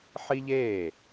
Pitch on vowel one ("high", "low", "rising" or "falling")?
high